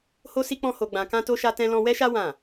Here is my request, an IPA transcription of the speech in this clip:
ho˦si˦k͡pɔ̃˦ ho˧ɡ͡bã˧kã˦ to˦ʃa˦tɛ̃˦lɔ̃˦ wɛ˦ʃa˦ wã˦˨

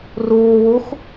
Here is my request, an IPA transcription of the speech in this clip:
ruːwux

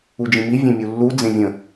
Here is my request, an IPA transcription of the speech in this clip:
ud͡ʒĩmi vʲẽmʲulːu d͡zẽvʲə̃

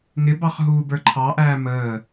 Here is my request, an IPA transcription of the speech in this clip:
ŋɪbɑχ ɦuːbə˞ǃʰɑʔæː məː

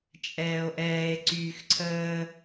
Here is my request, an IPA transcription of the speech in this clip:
t͡ʃʼɛːo̯ʔɛːe̯ ǀyːxǀʰəː

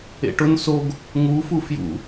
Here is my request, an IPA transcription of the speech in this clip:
ḛʈʊn soɡ | ŋufu fjṵ

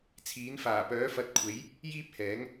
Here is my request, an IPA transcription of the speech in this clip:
t͡sʰiː˨˥n faː˨˩pœː˨˥fɐ˨˥t̚kʷʰe˨˥j | jiː˥p̚hɛː˨˥ŋ

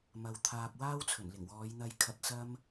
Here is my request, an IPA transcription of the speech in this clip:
mɐ˨w t̪ʰaː˨p̚ waː˥wt͡sʰɵ˨˩nlɪ˨˩ŋwɔː˨˧j n̪ɐ˧j kʰɐ˨t̚sɐ˧m

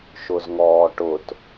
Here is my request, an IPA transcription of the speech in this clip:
ʃʊzŋɔːʈʊt

